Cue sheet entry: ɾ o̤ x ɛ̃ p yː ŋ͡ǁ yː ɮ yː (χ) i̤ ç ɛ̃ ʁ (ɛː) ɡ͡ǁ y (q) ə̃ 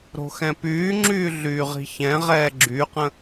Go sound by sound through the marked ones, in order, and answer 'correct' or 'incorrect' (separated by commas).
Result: incorrect, correct, correct